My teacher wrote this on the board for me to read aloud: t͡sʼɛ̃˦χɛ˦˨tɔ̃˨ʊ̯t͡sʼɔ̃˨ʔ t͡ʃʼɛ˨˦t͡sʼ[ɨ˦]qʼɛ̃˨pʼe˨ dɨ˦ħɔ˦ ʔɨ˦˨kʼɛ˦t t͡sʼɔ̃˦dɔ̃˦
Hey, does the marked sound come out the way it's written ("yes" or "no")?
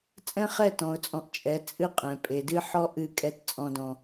yes